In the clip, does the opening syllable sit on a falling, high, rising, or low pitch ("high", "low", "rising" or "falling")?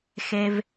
high